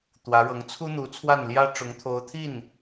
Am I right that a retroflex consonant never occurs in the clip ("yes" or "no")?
no